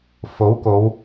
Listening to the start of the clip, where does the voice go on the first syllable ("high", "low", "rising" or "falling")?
rising